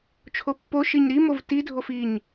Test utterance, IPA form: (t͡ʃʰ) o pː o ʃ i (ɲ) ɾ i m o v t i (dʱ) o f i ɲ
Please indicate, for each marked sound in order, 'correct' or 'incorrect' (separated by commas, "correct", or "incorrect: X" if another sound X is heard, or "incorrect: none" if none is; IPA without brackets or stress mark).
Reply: correct, correct, correct